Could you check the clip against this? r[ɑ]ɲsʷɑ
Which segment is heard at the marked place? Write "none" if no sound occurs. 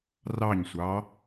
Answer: ɑ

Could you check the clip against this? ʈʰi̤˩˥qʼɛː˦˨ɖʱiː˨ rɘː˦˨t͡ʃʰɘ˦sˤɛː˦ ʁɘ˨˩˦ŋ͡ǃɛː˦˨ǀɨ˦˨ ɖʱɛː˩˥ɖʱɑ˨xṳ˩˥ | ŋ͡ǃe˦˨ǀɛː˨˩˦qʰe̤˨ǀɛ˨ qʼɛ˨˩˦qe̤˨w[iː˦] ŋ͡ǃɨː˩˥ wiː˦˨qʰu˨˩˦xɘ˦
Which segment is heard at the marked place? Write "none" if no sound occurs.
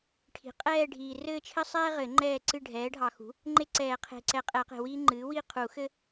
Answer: iː˦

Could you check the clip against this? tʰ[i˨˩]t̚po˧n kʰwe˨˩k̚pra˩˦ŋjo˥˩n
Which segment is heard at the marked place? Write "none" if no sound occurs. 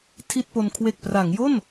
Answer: i˥˩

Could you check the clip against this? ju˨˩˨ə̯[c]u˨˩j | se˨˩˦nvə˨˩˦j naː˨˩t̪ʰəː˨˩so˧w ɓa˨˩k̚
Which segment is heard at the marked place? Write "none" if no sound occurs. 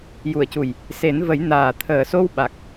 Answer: c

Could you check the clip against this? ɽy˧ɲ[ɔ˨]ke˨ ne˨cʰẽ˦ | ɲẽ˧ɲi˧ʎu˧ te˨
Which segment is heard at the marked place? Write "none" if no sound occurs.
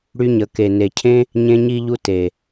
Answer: ə˨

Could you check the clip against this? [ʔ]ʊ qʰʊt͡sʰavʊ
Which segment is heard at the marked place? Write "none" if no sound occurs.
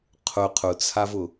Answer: qʰ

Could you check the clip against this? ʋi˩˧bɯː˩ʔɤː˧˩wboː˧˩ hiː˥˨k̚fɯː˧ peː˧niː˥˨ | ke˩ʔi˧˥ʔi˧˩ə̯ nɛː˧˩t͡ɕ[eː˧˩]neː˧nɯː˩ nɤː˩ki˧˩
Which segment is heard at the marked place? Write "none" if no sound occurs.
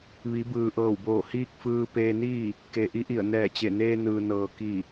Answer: e˧˩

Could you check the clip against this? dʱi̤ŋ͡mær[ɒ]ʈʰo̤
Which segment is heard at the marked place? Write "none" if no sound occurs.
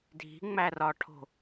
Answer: ɒ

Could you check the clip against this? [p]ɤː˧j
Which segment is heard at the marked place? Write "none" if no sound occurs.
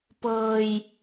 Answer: p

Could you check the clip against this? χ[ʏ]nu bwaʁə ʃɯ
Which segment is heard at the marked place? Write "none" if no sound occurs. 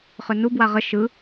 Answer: ʏ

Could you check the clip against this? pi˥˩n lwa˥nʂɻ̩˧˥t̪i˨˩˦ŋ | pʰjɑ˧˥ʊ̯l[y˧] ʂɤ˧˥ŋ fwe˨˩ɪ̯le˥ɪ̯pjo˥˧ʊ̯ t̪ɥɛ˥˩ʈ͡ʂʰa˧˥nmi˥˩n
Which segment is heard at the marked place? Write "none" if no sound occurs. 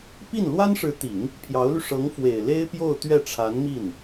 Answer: y˧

